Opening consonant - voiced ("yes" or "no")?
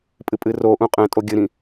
no